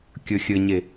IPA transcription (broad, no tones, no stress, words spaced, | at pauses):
kʲɵxʲɘɲe